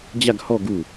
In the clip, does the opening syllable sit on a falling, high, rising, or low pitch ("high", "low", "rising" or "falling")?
falling